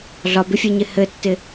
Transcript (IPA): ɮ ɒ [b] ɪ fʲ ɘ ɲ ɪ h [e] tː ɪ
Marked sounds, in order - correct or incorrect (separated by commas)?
correct, incorrect